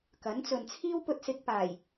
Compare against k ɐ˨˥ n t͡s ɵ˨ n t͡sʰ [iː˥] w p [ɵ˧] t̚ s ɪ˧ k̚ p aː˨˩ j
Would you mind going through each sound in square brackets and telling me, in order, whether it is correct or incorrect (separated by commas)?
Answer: correct, correct